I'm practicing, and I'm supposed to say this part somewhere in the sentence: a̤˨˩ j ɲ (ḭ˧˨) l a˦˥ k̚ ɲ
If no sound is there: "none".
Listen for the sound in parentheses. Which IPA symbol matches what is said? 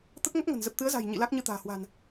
ḭ˧˨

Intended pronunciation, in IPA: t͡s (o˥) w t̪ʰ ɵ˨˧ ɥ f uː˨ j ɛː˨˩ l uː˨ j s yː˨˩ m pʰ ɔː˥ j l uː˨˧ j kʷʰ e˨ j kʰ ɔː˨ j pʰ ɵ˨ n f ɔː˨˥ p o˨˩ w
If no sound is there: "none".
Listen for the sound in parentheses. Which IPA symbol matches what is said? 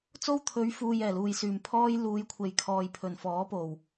o˥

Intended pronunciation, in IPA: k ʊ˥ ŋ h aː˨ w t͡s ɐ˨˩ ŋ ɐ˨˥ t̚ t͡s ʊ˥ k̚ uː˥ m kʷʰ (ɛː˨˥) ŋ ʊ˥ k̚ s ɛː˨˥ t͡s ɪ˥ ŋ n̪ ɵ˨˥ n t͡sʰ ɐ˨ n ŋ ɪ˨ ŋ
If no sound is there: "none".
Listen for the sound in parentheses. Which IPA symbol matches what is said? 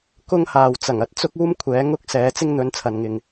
ɛː˨˥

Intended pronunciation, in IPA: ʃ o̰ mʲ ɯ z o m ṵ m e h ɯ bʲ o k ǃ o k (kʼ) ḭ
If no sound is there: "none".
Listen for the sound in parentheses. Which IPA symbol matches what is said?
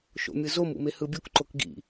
ɡ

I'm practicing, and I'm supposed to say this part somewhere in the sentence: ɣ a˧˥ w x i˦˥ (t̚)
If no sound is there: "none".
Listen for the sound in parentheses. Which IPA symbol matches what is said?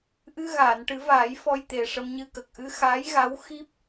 p̚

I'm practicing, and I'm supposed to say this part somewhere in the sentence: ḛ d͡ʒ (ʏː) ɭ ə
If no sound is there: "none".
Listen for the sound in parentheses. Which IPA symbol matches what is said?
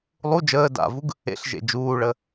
uː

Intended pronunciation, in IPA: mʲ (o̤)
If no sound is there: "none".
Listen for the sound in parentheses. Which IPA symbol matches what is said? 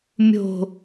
o̤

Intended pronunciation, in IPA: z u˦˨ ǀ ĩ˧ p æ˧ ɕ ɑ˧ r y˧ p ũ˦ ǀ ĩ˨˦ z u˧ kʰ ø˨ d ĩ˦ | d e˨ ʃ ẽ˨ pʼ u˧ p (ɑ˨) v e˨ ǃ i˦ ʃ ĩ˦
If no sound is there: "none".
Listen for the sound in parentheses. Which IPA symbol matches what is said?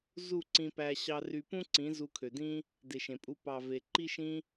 ɑ˨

